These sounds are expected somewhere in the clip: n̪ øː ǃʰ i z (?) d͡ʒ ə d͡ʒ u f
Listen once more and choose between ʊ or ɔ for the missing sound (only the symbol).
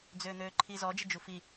ɔ